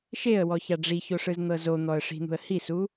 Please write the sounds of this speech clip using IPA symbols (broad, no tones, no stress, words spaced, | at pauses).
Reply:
ʃeə̯wɔ çaɖ͡ʐiço ʂɯzn̪ɤzon̪ɔə̯ ʂi̤n̪ṳə̯hisu